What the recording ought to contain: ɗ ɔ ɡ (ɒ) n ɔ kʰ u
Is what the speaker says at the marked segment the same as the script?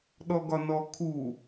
yes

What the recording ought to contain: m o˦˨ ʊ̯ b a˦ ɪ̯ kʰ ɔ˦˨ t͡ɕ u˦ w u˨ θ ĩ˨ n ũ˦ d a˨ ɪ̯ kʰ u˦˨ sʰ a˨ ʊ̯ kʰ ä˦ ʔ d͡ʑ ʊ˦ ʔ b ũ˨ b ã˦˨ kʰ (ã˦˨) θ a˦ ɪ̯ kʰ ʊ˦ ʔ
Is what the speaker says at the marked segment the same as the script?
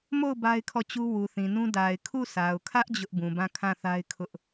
yes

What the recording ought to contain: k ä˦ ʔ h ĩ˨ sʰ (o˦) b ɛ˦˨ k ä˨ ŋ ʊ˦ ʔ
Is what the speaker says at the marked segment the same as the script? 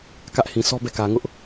no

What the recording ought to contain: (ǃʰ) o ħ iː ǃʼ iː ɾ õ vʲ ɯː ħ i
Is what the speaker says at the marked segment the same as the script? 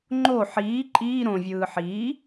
no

